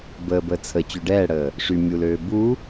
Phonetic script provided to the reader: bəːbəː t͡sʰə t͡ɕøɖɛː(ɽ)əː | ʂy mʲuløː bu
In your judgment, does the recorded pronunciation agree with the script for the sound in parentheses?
yes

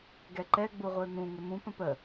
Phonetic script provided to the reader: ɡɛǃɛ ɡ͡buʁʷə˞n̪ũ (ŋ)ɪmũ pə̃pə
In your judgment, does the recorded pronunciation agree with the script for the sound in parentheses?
yes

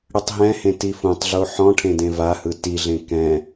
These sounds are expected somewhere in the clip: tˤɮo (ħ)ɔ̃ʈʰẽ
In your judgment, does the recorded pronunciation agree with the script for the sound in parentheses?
yes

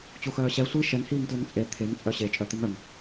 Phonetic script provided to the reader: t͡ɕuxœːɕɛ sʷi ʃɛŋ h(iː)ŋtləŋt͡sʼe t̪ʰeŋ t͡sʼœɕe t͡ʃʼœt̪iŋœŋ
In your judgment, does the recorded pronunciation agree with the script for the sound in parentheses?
yes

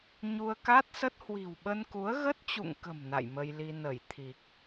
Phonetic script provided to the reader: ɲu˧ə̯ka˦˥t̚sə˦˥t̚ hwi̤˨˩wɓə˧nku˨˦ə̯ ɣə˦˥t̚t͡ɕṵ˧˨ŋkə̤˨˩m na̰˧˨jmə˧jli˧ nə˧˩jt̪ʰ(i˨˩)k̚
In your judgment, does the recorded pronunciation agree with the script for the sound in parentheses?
yes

